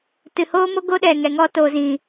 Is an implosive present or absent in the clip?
present